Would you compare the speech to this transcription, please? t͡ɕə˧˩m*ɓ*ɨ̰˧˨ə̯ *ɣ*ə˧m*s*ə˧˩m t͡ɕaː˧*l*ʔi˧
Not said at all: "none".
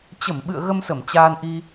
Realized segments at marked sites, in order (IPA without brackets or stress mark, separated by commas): ɓ, ɣ, s, n